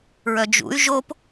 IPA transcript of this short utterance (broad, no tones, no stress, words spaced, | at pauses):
ɹœd͡ʒṵy̯ ʒop